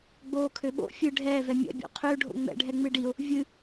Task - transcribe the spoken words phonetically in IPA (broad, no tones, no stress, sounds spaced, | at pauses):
ɡ͡b oː kʰ ø ɓ o̰ fʲ ɨ ɖʱ ɛː v ɛ mʲ ɛ̰ bʲ o̰ qʰ ø ɖʱ o̰ ŋ͡m ɛ̰ ɖʱ ɛ ŋ͡m ɨ ɖ i ʊ̯ | vʲ ɨ